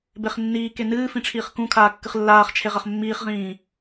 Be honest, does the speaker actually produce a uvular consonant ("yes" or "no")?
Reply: yes